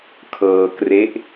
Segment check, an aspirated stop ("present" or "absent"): present